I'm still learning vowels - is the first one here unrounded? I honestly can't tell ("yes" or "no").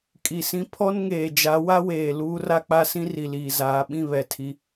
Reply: yes